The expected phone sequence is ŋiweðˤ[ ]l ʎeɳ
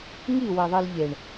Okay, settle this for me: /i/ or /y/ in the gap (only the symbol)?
i